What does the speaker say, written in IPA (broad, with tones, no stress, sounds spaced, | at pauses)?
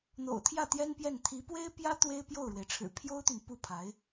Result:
n̪ o̰˨˩ ʊ̯ t̪ʰ j ä˥˩ t̪ j ɛ˥ n p j ɛ˥˩ n t̪ʰ i˧˥ p w e˥ ɪ̯ p j ä˥ t̪ w e˥ ɪ̯ p j o˥˩ ʊ̯ ɻ w e˩ ɪ̯ ʈ͡ʂʰ ɻ̩˨˩ pʰ j o˥ ʊ̯ t̪ y˨ n p u˥˩ pʰ a˧˥ ɪ̯